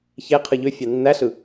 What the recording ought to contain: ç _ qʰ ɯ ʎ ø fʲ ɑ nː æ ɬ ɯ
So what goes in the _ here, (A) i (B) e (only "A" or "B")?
B